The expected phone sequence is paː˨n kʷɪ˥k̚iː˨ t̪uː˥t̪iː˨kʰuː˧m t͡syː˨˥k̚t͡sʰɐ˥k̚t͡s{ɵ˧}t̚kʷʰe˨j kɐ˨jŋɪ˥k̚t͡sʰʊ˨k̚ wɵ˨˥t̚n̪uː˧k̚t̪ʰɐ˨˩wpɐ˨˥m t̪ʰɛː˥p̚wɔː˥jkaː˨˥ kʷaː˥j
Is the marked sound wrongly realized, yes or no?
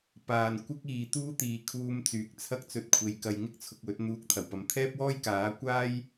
no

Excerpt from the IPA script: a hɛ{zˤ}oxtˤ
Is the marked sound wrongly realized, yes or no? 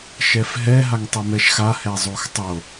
no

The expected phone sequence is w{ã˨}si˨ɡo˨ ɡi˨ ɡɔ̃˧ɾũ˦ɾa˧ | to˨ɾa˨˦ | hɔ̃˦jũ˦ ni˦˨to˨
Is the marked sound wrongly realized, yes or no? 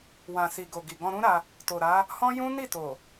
no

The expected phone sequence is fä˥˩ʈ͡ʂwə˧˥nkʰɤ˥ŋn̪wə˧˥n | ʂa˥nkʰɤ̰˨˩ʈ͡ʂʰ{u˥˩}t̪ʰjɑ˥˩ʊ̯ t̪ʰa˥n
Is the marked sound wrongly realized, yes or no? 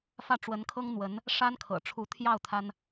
yes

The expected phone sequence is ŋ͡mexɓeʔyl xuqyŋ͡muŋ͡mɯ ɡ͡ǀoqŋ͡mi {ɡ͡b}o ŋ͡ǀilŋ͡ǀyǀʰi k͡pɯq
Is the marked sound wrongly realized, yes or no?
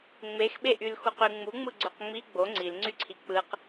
no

